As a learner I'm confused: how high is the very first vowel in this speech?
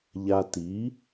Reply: low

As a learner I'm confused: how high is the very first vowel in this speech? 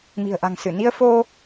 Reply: high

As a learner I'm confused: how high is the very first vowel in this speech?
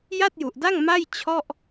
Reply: low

